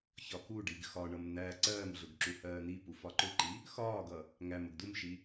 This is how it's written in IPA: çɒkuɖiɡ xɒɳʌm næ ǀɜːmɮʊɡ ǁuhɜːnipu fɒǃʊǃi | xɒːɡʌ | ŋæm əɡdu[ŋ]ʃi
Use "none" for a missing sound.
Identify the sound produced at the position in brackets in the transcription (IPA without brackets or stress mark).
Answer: m